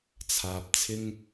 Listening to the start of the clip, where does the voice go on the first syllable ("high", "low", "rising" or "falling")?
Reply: low